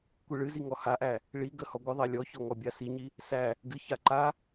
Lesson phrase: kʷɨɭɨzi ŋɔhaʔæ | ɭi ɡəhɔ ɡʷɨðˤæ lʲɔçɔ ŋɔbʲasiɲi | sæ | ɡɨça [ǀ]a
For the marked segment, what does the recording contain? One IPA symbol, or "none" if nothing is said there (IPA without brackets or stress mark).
ǃ